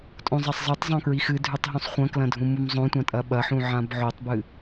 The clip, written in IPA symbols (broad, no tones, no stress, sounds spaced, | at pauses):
tʼ õ zˤ ɐ sˤ zˤ ɨ tˤ zˤ õ k ɹ i x ɨ dʱ ʉ tˤ ɦ ũ sˤ χʷ ɐ̃ k l ɐ̃ dʱ ũ m u m zˤ õ tʷ ã tʼ ɐ ɓ ɐ ħ ũ ʕ ã b ʕ o tˤ b ɨ